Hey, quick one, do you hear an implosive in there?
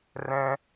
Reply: no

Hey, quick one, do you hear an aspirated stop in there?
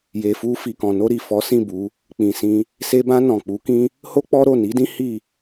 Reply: no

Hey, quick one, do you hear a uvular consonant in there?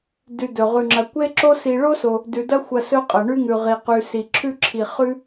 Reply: yes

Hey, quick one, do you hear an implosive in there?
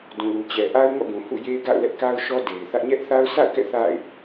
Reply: no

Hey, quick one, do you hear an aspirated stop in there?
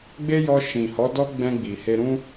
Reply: no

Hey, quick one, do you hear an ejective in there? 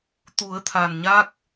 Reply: no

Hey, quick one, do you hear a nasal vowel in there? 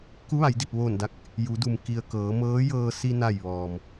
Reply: no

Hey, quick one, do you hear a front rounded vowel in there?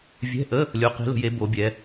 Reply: no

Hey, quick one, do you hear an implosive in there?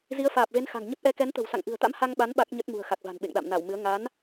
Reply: yes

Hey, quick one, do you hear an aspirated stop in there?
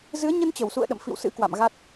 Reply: no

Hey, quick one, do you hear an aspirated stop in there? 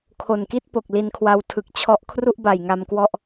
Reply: yes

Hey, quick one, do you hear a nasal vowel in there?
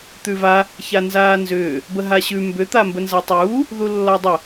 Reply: no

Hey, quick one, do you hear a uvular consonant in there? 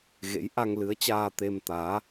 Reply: no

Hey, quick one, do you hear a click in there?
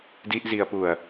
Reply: no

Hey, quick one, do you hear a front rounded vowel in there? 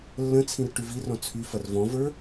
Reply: yes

